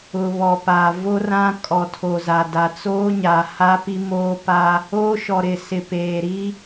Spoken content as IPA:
ʊ˨ β ɔ˨ p aː˨ v o˦ r ã˦ kʼ ɔ˨ tʰ o˨ z a˨ d a˨ t͡s oː˦ ɲ a˨ h a˦ p i˦ m oː˦ p a˦ | oː˦ ʃ ɔ˨ ɾ ɪ˨ s ɪ˨ p eː˨ ɾ i˦

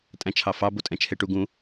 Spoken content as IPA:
tʼ æ̃ t͡ʃʰ ɑ f ɑ b o tʼ ɛ̃ t͡ʃʰ e ʈ u ɡ ũ

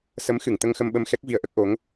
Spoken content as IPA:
s ə˧˥ m x ɨ˨˩˨ ŋ t̪ ə˧ ŋ x ə˧ m ɓ ə˧ m x ɛ˦˥ k̚ v i˧ ə̯ ʔ ə˦˥ k̚ ʔ o˧˥ ŋ

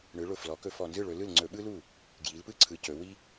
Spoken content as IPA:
ɳ ɯ˩˧ ɭ ʊ˨˩ f l ɔ˩˧ k ɵ˧˩˧ f ɔ˨˩ n z ɯ˥˩ ɭ ɵ˩˧ l ɯ˥˩ l ŋ͡ǀ ɵ˧˩˧ ɓ ɯ˥ l u˥˩ | ɡ j i˩˧ l p ɯ˥ ǀʰ ɯ˩˧ c ɵ˩˧ w i˥

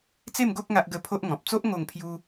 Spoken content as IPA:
t͡s e˥˧ m ɡ o˦ k̚ ŋ a˦ ʔ ɡ ə˦ pʰ o˦ ʔ ŋ ɔ̃˨ p̚ t͡s o˦ ʔ ŋ o˥˧ ŋ pʰ j u˦

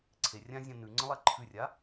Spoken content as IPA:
ǀʰ e rʲ ã zʲ ã n ʉ ŋ͡ǀ ə̃ lˠ a ǃʰ ʉ rʲ a

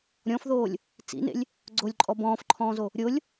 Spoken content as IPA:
ɾʲ ɔ̃ f ð oː lʲ | t͡s ḭ n ḛ lʲ | ɡ͡ǀ o lʲ ǃʼ ɔ b ɔ̃ː f ǃʰ ɔ̃ː z o | ɾʲ o lʲ

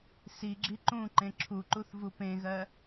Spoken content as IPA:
s i ɡ͡ǁ i ǃ ũ ǃ ẽ ǁʰ u ǃ u θ v u p ẽ ɣ ɜ

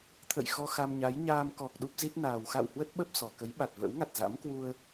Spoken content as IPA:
t̪ʰ ə̰˧˨ j x ɔ˧ x a˧ m ɲ a˨˦ j ɲ aː˧ m k ɔ˨˩ k̚ ɗ u˦˥ p̚ z i˦˥ t̚ n aː˨˩ w x a̰˧˨ w h w ə˦˥ t̚ ɓ ə˦˥ p̚ s ɔ˨˩ k ə˨˦ j ɓ a˨˩ t̚ v ə̰ː˧˥ w ŋ a˨˩ t̚ z a̰˧˥ m k w u˧ ə̯

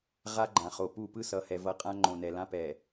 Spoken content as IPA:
ʁ a˦ ɡ͡ǃ ã˨ χ o˨ p u˦˨ p ɯ˦ s ʌ˨ h ɛ˨ v ʌ˨ qʼ ã˦ ŋ͡ǃ õ˨ n ɛ˨ l ã˦ p ɛ˨

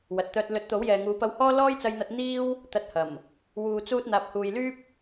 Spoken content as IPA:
w ɐ˨ t̚ t̪ œː˧ t̚ l ɵ˨˥ t̚ t̪ o˨˥ w j ɛː˨ ŋ uː˨˧ p ɐ˧ w h ɔː˥ l ɔː˥ j t͡s ɐ˧ j n̪ ɐ˧ t̚ n̪ iː˥ w | t̪ ɐ˧ t̚ h ɐ˨˩ m | w uː˨ t͡s uː˧ t̚ n̪ aː˨ p̚ h uː˨ j l yː˥ p̚

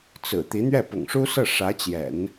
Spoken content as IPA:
t͡s ɹ̩˨˩ t̪ i˧˥ n̪ ɥ ɛ˥˩ p ʊ̰˨˩ ŋ ʂ u˥ s ɤ˥˩ ʂ ä˧˥ t͡ɕ j ɛ̰˨˩˦ n

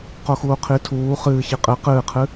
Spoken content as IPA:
q o x uː qʰ i tʰ uː χ ɨː ç i qʼ ɨ q ɨː qʰ ɨ

